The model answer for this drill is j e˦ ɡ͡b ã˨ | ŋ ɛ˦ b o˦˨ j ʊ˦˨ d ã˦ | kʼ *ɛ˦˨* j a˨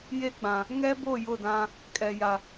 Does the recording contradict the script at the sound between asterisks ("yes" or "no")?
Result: yes